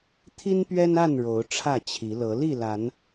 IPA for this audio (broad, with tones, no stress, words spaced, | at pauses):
t̪ʰi˦npɥɛ˦na˥˨n ɻo˨˦ʊ̯ʈ͡ʂʰä˥˨t͡ɕʰi˨˦ lɤ˨˦ li˥˨la˨˦n